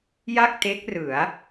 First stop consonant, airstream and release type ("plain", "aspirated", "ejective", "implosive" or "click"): plain